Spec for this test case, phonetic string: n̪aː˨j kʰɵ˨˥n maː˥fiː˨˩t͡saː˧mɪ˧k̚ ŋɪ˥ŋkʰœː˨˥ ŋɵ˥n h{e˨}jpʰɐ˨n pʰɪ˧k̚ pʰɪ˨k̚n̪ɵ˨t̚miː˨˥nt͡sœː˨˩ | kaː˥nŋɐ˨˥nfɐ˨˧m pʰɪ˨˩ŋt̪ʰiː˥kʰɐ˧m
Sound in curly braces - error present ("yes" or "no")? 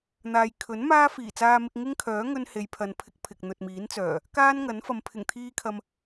yes